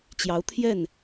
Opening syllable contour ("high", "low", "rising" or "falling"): rising